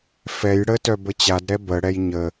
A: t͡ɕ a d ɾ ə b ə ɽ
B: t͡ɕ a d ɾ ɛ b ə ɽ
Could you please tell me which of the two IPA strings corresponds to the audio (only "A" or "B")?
B